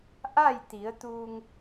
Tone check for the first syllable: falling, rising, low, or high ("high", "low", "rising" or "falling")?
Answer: falling